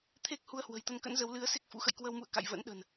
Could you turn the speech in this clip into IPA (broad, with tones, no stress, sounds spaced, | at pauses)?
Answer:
t̪ʰ e˦˥ k̚ h u˧ ə̯ h w ə̤˨˩ j t̪ ə˧ n k ə̰˧˥ n z ə˨˦ w l ɨ˨˦ ə̯ s e˦˥ k̚ f ṵ˧˥ x ə̰˧˨ j k w ə˧ w m ṵ˧˨ ə̯ k a̰˧˨ j v ə̰˧˥ n ɗ ə̤˨˩ n